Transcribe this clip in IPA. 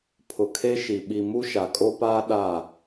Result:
pʰʊ˨kʰe˦ʃi˨ ɓi˨ mu˦ʃa˨kʼo˦paː˦ ɗa˦˨

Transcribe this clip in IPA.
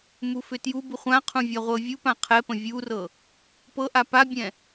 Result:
mufʏtjubu χʷãqʰũ vʲaʁʷɤvʲupã qʰɛpə̃ vʲurɤ | pɤʔa pabʲɛ̃

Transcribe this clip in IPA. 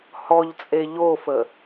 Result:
hɔʎt͡sʼe ʎofə

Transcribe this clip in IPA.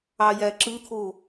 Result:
ɑjæǁɯt̪ʰo

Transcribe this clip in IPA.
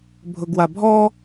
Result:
bʱʊɡwabʱɔ

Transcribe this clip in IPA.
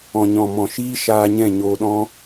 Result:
ɔ̃˨ɲɔ̃˨mɔ̃˨ʃiː˦ ʃaː˧ɲɛ̃˦˨ ɲoː˧ɗɔ̃˦

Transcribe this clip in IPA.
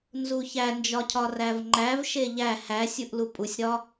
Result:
nzuçænd͡ʒɒcʰɒ rævŋ͡ǃæv ʃeʎæ hæ sʲuʔlupʼusʲɾɒ

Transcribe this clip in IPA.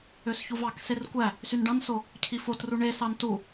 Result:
øsçuvɑkser kʷæ | synɖɑ̃nso | cʰifotru ɳesɑn tu

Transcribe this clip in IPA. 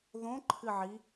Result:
ðõǃʰɨʕi

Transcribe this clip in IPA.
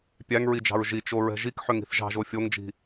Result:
pʲæŋɹid͡ʒɑ̤ɹ ʒit͡ʃoɹɛ̤ ʒikħʏŋi̤θ ʒɑ̤ʒo fʲoŋd͡ʒi̤

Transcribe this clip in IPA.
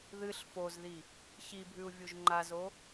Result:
ðɨɬ fozði | çibʱʉu̯ vʲuʒŋ͡ǃazo

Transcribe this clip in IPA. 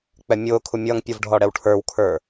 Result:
k͡pɛmʲʊːkʰu mʲʌŋpʲuv ɖʱɔɽɛwʈʰə˞wkʰə˞

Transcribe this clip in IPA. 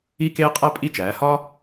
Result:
i˥˧keː˥qʼæ˥pʼi˥˧ t͡ʃæː˩˧ hɒ˥

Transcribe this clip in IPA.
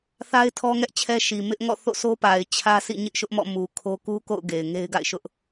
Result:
θa˦ɪ̯ tʰɔ˦ŋɛ˦ʔt͡ɕʰɛ˦ ʃi˨mɪ˦ʔ ŋɔ̰˦˨θo̰˦˨sʰo˦pa˨ɪ̯ t͡ɕʰä˦sʰḭ˦˨ ɲɪ˦ʔʃʊ˦ʔmɔ̰˦˨mu˨ kʰo˦ ku˦ko̰˦˨ʊ̯ ɡe˨ɪ̯ŋe˦ɪ̯ɡa̰˦˨ɪ̯ʃʊ˦ʔ

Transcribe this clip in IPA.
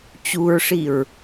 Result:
t͡ɕuɹʂiɹ

